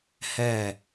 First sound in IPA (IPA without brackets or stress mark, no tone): h